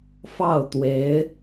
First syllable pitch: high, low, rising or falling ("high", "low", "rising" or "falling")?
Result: falling